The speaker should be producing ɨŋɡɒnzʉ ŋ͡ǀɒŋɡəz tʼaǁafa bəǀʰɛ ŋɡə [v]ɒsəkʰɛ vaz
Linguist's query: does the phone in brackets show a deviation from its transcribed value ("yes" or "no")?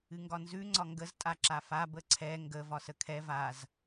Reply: no